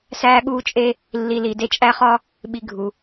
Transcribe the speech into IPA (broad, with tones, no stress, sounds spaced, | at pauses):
s æː˦ ɠ uː˦ t͡ʃʼ e˦ | lː i˨ l i˩ d e˦ t͡ʃʼ æ˥ χ ɒ˥ | ɓ i˨ ɡʱ u˩